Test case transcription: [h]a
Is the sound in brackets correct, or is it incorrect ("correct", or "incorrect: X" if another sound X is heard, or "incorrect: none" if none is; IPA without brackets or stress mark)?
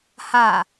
correct